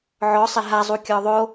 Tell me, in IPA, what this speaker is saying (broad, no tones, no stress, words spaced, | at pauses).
ʕɔsˤɪ ɦazˤu kʲɔðˤo